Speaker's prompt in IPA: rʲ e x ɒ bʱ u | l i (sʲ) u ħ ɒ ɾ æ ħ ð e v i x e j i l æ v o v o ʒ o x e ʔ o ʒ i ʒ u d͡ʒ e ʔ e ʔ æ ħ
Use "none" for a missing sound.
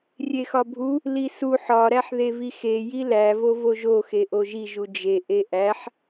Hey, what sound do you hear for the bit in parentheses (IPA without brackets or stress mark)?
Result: s